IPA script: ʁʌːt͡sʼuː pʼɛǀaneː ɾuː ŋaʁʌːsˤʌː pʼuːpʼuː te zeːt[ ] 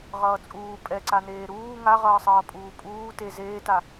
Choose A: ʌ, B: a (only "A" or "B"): B